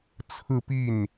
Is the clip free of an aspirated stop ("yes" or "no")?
no